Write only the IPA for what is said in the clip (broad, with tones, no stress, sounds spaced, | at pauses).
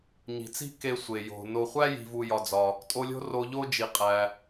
ɲ i̤˨ t͡s i̤˥ k e˨ sʷ e˩ j o̤˩ n o˨ χʷ æ˦ j i̤˨ v u˨ j ɒ˨ d͡z ɒ˨ | tʼ o˦ lʲ o̤˥ r o˦ ʎ o˦ d͡ʒ i˨ qʼ æ˨